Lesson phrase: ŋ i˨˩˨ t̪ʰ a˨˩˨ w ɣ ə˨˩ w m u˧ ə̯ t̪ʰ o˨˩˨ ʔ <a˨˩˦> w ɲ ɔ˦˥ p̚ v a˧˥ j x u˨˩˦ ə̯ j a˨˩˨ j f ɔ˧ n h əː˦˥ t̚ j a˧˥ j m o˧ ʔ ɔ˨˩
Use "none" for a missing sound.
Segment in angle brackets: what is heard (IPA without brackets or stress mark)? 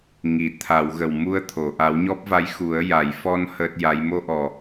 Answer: a˨˩˦